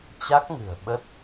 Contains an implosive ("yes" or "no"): yes